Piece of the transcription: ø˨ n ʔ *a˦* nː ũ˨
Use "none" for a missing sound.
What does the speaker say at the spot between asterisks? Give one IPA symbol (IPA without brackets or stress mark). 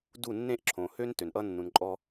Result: ʌ˦